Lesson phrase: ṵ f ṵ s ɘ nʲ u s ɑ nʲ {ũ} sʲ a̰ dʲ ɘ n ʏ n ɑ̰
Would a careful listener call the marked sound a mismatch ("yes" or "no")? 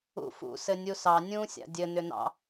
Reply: yes